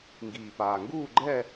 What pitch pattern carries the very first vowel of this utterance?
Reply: low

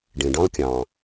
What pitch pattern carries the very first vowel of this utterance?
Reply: low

